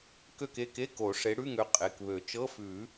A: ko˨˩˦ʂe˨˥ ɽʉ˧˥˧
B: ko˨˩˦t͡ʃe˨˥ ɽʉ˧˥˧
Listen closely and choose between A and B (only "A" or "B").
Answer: A